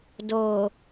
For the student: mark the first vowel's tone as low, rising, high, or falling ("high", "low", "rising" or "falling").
low